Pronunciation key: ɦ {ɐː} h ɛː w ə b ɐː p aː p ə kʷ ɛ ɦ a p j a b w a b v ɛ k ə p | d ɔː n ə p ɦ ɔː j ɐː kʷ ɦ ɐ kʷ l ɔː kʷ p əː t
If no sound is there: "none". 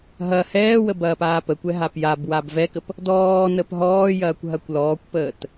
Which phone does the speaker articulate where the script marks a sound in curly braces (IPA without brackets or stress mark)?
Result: ɐ